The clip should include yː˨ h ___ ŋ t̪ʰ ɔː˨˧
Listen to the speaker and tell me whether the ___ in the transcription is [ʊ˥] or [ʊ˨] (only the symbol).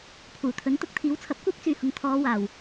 ʊ˨